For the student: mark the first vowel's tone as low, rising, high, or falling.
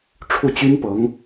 falling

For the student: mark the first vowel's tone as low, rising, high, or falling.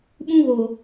high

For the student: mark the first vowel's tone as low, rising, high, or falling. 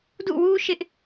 falling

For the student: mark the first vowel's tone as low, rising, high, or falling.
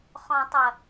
low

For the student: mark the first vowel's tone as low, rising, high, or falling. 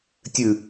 falling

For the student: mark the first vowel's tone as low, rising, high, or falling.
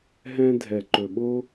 high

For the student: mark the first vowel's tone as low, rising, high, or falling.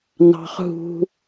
low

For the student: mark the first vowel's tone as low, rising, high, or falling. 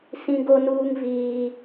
high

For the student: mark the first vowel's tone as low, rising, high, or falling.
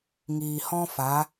low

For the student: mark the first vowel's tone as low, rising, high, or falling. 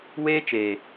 high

